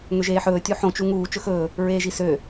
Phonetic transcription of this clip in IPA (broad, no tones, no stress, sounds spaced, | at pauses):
ŋ ø ʒ eː ħ ɵː tʲ u ħ õ t͡ʃ u ŋ uː t͡ʃ ɵ x ɵː | ɹ eː ʒ i s ø